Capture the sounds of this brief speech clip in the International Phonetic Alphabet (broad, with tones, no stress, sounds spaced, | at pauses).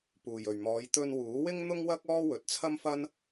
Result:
p uː˨˩ j ɵ˨˩ ɥ m ɔː˨˧ j t̪ ɵ˧ n w uː˨˥ w ɪ˥ ŋ n̪ ʊ˥ ŋ w ɐ˥ k̚ ɔː˥ w ɵ˨ t̚ t͡sʰ ɐ˥ m f ɐ˥ n